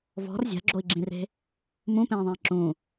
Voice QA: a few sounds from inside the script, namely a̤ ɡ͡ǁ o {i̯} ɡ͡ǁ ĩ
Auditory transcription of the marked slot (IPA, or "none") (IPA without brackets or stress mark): i̯